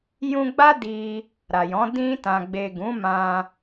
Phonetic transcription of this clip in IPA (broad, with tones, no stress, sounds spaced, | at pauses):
j ũ˧ ɡ͡b a˦ d i˧ | ɾ a˨ j ɔ̃˨˦ d ĩ˧ t ã˨ ɡ͡b e˨ ɡ ũ˨˦ m ã˧